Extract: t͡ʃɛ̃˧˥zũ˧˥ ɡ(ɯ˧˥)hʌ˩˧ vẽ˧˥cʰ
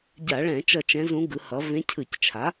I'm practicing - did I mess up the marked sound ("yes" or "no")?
yes